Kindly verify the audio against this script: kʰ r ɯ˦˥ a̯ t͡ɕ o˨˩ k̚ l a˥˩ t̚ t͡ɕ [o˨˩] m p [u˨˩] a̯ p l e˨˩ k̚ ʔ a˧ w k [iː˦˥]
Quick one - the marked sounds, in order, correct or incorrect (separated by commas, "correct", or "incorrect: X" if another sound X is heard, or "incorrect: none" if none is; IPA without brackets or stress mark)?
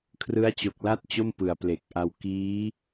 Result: incorrect: o˥˩, incorrect: ɯ˨˩, correct